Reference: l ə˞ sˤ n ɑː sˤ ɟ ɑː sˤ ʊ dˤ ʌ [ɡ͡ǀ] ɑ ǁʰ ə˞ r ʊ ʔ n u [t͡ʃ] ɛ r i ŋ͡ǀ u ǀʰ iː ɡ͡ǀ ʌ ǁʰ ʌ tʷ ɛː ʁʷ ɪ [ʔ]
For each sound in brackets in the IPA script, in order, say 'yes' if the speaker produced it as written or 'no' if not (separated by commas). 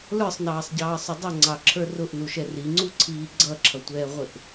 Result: no, no, yes